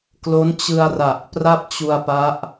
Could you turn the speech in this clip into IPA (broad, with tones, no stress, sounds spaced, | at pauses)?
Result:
k l o˦˥ n t͡ɕ ɯ˧ a̯ r a˨˩ ʔ p r a˥˩ p̚ t͡ɕ u˧ a̯ p a˦˥ ʔ